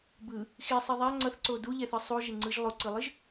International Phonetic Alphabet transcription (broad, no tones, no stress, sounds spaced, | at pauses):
b ɯ | x i sˤ e ðˤ a ŋ͡ǀ ʌ θ ǀ o d u ʎ ɛ θ ɯ sˤ u ʒ e ŋ͡ǀ ɯ ʒ lˠ o ǀ ɯ lˠ ɯ ʒ